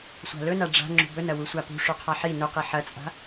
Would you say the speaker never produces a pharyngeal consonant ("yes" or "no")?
no